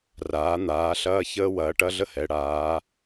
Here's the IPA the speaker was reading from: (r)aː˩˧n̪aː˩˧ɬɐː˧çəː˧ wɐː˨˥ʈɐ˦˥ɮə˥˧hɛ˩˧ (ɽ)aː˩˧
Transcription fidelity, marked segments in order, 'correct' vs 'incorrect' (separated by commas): correct, correct